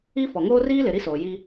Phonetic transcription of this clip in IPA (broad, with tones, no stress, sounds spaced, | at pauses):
i˦ f ɔ˨ ŋ oː˦ r iː˦ l ɪ˨ ɾ i˦ s oː˨ j i˦